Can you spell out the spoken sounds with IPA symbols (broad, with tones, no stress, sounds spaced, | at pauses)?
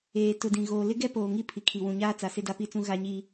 eː˨ t ʊ˨ d ĩ˨ ɣ oː˨ l ɪ˦ ɡ ɛ˦ p oː˨ ŋ i˦ pʰ i˨ kʰ i˨ w ũ˨ ɲ aː˦ t͡s a˨ s ɪ˦ d a˦ p i˦ t͡s ũ˦ ɣ a˦ ɲ i˦